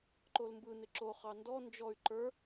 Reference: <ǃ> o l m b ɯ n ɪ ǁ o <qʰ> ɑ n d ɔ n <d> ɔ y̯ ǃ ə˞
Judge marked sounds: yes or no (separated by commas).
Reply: yes, no, no